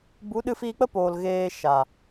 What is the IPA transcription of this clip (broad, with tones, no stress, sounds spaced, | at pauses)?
b u˨˦ ɗ ɨ˧ f iː˧ k͡p ə˦ p oː˨ l ɣ eː˨ ʃ a˨